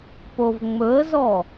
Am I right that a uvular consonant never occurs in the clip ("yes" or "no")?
yes